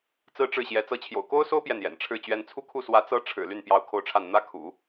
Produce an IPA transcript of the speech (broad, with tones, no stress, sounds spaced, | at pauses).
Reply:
t͡s ɹ̩˥ ʈ͡ʂ ɻ̩˥˩ ɕ j ɛ˧˥ t͡s ɤ˧˥ t͡ɕʰ j o̰˨˩ ʊ̯ k o˥ ʊ̯ s o˥ ʊ̯ p j ɛ˥˩ n j ɛ̰˨˩ n ʈ͡ʂʰ ɻ̩˥˩ t͡ɕ ɥ ɛ˥ n t͡sʰ u˥˧ kʰ u˥˩ s w ä˧˥ t͡s ɤ˥ ʈ͡ʂʰ ɻ̩˨˩ l y˥˩ n p j ɑ˥ ʊ̯ kʰ o˥˧ ʊ̯ ʈ͡ʂʰ a˥˩ n n̪ ä˥ kʰ ṵ˨˩˦